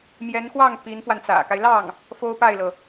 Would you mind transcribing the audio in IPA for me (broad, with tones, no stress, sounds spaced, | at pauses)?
m j ɛ˧˥ n x w ɑ˥˩ ŋ p i˧˥ n f w a˧ n t͡s ä̰˨˩ k a˦ ɪ̯ l ɑ˥˩ ŋ | f o˥ ʊ̯ p a˥˩ ɪ̯ l ɤ˩